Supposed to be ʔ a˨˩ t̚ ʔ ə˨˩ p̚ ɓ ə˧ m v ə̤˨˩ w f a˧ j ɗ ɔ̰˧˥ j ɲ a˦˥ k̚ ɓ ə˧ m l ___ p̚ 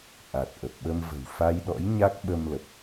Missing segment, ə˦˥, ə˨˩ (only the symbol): ə˨˩